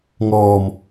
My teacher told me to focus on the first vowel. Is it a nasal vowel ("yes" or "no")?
no